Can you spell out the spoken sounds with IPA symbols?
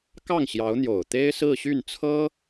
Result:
kɑ˥˩ŋɕjɑ˧˥ʊ̯n̪jo˨˩ʊ̯ t̪e˥ɪ̯sɹ̩˥˧ɕy˥˩nt͡sʰɤ˥

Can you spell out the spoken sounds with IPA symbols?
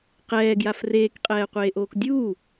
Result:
qɛːɡjaf reːkqʼɛːqʷeːʔoːk dʲuː

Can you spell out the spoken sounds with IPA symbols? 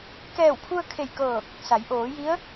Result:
kɛː˧˩wpʰu˧ə̯ kʰe˧˩jkɤː˧˩k̚ | sa˩˧jʔoː˩˧ji˧˥ə̯

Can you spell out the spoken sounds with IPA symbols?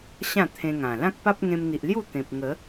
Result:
ɕã˥˧t̪ʰẽ˧ŋã˨˩ lã˦k̚pa˦p̚ŋẽ˧mn̪i˨ʔ lju˥˧t̪ẽ˨p̚ ŋə˨˦

